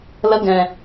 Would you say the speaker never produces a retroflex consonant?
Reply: yes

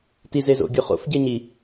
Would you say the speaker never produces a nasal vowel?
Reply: yes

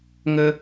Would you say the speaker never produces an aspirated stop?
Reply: yes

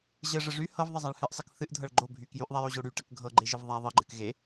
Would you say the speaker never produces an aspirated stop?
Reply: yes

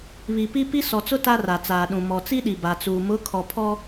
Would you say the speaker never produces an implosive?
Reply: no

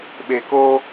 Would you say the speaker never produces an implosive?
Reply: no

